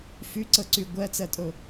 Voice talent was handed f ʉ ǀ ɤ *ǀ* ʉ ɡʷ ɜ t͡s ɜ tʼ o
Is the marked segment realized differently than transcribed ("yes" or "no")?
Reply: no